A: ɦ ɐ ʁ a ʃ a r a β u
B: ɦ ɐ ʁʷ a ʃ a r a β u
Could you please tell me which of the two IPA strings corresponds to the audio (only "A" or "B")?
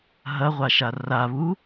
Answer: B